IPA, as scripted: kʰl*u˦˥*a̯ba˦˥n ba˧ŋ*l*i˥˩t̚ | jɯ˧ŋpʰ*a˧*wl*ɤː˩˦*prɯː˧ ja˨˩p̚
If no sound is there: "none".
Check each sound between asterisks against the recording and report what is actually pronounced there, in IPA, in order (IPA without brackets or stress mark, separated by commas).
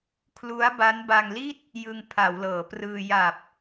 u˦˥, l, a˩˦, ɤː˩˦